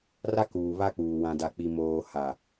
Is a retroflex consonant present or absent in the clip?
absent